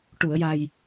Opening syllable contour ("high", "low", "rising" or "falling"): low